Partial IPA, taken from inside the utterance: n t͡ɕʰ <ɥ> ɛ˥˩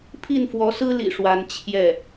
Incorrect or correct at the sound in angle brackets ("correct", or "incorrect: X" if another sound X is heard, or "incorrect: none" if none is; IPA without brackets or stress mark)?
incorrect: j